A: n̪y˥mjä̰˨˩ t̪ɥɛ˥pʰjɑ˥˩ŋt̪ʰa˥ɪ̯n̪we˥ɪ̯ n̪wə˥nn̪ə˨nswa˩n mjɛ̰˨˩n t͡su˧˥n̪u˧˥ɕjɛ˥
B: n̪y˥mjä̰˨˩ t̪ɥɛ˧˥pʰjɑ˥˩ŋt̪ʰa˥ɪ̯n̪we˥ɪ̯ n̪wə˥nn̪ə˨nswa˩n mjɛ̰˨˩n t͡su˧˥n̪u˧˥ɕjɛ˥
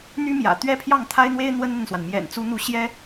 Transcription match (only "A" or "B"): A